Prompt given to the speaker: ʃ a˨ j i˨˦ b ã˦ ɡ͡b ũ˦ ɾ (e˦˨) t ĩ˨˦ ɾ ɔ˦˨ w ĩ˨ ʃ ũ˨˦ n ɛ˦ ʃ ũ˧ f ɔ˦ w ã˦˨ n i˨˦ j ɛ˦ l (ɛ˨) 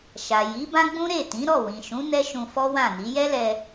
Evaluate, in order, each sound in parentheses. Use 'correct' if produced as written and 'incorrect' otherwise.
correct, incorrect: ɛ˧

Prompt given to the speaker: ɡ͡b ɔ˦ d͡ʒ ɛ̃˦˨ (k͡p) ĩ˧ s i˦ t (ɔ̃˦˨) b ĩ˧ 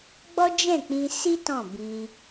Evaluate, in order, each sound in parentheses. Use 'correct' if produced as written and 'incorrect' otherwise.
correct, correct

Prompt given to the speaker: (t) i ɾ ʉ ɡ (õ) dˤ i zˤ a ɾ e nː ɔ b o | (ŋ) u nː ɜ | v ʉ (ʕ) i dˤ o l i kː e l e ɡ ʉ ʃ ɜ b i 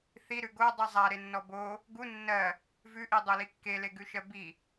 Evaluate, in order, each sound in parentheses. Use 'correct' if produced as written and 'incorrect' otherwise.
incorrect: θ, incorrect: o, incorrect: ɡ, incorrect: ʔ

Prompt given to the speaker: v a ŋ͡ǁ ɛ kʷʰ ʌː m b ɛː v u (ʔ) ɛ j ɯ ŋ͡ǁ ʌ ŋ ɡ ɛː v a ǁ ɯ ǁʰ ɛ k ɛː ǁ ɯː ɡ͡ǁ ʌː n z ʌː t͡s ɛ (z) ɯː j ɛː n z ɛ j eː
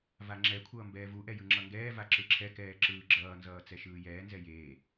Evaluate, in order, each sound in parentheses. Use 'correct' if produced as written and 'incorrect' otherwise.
correct, incorrect: ʃ

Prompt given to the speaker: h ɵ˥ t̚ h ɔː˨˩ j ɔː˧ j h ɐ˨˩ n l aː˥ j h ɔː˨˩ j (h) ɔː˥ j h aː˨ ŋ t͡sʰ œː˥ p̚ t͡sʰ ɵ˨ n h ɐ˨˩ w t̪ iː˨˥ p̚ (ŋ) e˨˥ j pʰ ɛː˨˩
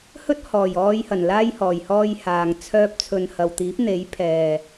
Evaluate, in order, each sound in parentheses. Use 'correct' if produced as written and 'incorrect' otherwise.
correct, incorrect: n̪

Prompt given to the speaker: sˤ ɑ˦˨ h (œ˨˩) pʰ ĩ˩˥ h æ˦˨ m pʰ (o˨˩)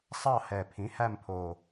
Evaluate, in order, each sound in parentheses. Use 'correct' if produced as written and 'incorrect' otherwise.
incorrect: ɛ˨˩, correct

